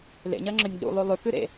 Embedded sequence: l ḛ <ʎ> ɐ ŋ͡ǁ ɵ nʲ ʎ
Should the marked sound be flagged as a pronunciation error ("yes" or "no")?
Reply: yes